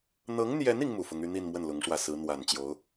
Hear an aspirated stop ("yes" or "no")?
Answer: no